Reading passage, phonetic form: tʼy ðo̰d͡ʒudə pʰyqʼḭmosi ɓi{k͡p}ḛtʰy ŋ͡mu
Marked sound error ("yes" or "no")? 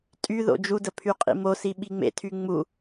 yes